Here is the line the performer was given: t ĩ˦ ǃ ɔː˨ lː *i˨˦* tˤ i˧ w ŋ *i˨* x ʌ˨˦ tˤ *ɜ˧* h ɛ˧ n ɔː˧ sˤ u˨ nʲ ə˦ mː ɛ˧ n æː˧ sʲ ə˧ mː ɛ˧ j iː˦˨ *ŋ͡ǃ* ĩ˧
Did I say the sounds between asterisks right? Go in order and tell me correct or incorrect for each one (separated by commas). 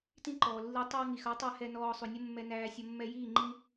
incorrect, correct, incorrect, correct